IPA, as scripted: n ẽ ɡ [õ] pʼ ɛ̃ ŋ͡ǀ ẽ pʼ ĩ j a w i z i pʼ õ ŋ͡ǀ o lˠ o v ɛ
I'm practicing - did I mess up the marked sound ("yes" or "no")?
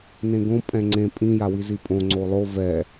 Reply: no